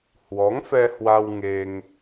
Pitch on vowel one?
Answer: rising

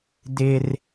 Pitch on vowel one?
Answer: high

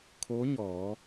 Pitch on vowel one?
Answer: rising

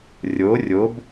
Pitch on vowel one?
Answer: rising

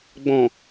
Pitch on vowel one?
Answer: low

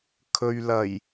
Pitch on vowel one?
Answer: low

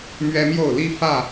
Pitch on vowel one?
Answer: high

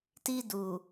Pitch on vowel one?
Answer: high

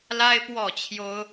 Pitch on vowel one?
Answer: high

